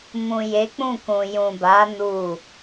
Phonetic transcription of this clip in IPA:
m ũ˨ j e˨˦ k͡p ũ˦˨ k ũ˨ j ũ˨ b a˨˦ n u˦˨

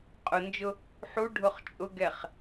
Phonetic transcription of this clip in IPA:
qʼ ʊ n d͡ʒ ʊ | ħ u ɖʱ ʊ χ t͡ʃʼ ʊ ɡ ɛ χ

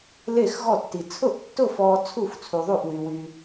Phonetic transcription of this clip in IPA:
l e˥˨ x ɣ ɔ˥˨ tː i˧ t͡sʰ ʊ˥˨ ʔ tː ʊ˥˨ f ɔː˧ t͡sʰ u˥˨ f t͡sʰ u˧ ðˤ u˥˨ ʔ w y˧ w y˧

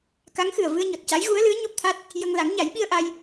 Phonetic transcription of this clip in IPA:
k a˧˥ ŋ x ɨ˨˩ ə̯ v ɨ˧ ə̯ ɲ ɔ˨˩ t̚ c a˧˥ j ɣ u˧˥ ə̯ l ɨ˧˥ ə̯ ɲ o˦˥ p̚ t̪ʰ a˦˥ t̚ | j ə˧ ŋ l a˨˩˦ ŋ ɲ a˨˩˦ j ɓ i˧ ə̯ ʔ a˧ j

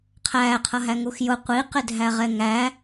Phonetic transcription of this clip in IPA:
qʰ æː qʰ ʌ ɦ æ ŋ u x j ʊ qʷ i q ɪ dʱ æ ʁ ɛ ŋ æ

